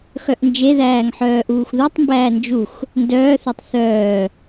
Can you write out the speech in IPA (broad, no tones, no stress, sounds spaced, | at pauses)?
x œ ʔ n d͡ʒ e ð æː ŋ ħ œː ʔ uː x ð u tˤ m b æː n d͡ʒ u x | n d œː θ ə˞ tˤ θ œː